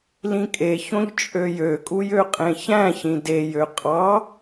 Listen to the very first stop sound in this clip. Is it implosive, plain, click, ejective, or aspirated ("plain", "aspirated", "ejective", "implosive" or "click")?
ejective